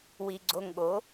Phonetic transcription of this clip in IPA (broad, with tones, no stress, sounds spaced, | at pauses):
w i˧ ɡ͡ǀ o˧ ŋ ɠ o˨˦